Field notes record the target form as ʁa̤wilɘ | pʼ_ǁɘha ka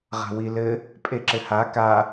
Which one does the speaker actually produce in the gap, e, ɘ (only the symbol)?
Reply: e